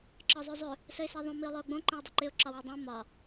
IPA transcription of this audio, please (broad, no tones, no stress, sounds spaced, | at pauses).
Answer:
ǁ ɒ zˤ ø zˤ ø | s ə ɪ̯ s ɛ ðˤ õ m i ʊ̯ lˠ ø ʊ̯ ɡ͡b õ ǃ ə̃ ʊ̯ dˤ ɪ ǃ ɪ ʊ̯ ǁ ɒ w u dˤ ɛ̃ m ɒ